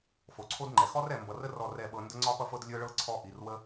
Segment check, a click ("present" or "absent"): present